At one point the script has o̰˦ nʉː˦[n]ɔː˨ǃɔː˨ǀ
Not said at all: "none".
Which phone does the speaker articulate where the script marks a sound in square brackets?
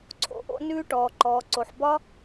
ʈ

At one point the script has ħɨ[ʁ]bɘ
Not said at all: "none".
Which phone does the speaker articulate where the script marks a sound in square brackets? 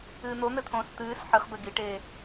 χ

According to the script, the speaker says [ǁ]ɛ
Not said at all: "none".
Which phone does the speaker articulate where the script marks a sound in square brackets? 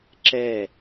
ǁ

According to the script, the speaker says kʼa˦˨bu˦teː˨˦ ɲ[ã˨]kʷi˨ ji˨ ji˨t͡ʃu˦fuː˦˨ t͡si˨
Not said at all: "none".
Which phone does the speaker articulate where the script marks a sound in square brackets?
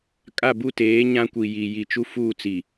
ã˦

